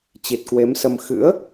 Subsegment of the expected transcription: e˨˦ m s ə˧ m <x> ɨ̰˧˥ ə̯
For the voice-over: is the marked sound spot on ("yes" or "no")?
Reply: yes